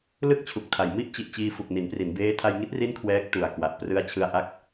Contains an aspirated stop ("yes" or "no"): yes